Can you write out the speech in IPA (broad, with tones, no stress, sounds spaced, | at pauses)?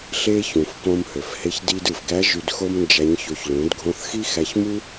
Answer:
ɬ e˥ ç ũ˩ f k õ˧ m h ø˩ f h e˧ ç d i˧ d ɯ˩ f ɡ æ˧˥ ʒ y˧ d x o˥ m n d͡ʒ æ˧˥ ɲ ç o˧ ç l ũ˩˧ d ɡʱ õ˧ θ x i˥ x æ˧ ç m u˥